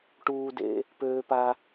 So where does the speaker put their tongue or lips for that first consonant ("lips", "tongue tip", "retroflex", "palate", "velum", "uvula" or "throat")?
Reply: retroflex